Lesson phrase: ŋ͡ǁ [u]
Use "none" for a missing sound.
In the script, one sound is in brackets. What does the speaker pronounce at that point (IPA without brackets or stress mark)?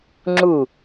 u